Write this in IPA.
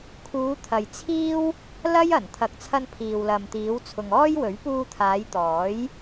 kʰ uː˨˧ t̪ʰ ɐ˨ j t͡sʰ iː˥ w | l ɐ˥ j ɐ˨˩ n t̪ʰ ɐ˨ k̚ t͡sʰ ɐ˧ n pʰ iː˨ w l ɐ˨ m t̪ iː˨˧ w t͡sʰ ʊ˨ ŋ ɔː˥ j w ɵ˨˥ ɥ p uː˧ t̪ʰ aː˨˧ j t̪ ɔː˨˥ j

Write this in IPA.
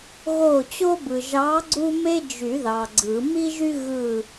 ɣ o˦˨ t͡ɕ o˥ b ɯ˨ ʒ ɑ˧˥ ɡ͡ǀ u˥ m e˥ d͡ʒ y˨˩˦ ð ɑ˨ ɡ͡ǀ ɯ˨˩˦ m i˥ ʒ y˥ ɣ ɯ˦˨

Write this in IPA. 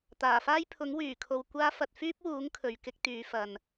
t̪ aː˨˩ f aː˥ j pʰ ʊ˨˥ ŋ w yː˨˩ kʰ o˨ w kʷ aː˥ f ɐ˧ t̚ f yː˥ p̚ w uː˨˥ ŋ kʰ ɵ˨ ɥ k ɪ˥ k̚ t̪ yː˨˥ f ɐ˨ n

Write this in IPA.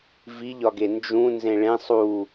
v i ʎ ɒ ɡ e n d͡ʒ ũ n z ẽ ɭ ẽ sˤ u

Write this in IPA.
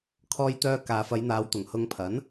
kʰ ɔː˧ j t̪ œː˧ k aː˨ f ɐ˨˧ j n̪ aː˨˧ w t̪ ʊ˨˩ ŋ h ʊ˧ ŋ pʰ ɐ˨˥ n

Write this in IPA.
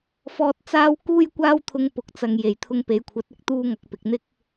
f ɔː˧ t̚ t͡s aː˥ w k uː˥ j kʷ aː˥ w t̪ʰ ʊ˧ ŋ p ʊ˨ k̚ t͡s ɐ˨ ŋ j e˨˩ j t̪ʰ ʊ˧ ŋ p e˨˧ j kʷʰ ɐ˨˥ t̚ ɪ˧ k̚ t̪ uː˥ ŋ ɐ˧ k̚ p ɪ˨ k̚ n̪ ɪ˥ k̚

